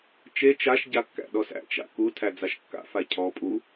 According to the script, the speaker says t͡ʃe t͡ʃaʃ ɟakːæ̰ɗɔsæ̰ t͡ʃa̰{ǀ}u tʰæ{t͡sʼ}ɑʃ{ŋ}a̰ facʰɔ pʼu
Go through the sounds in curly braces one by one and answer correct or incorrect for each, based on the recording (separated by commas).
incorrect, incorrect, incorrect